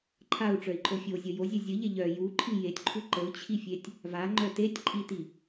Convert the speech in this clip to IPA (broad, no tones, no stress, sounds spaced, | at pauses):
ǃʰ a u̯ ʈ͡ʂ œ i̯ ǃʼ o fʲ o zʲ ə j o zʲ œ zʲ ə ʎ e ʎ œ j u ǃʰ i j e tʲ ǃʰ u ǃ ə u̯ t͡ɕʰ i fʲ e tʲ | v a ŋ͡ǃ œ t e tʲ ǃʼ i t i